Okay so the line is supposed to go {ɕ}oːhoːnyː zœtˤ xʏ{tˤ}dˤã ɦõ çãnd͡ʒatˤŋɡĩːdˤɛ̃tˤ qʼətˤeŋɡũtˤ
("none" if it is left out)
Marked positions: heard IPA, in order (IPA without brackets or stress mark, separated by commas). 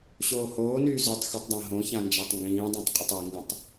ɕ, tˤ